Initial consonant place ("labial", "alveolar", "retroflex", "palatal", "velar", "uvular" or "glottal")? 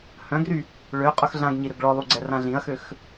glottal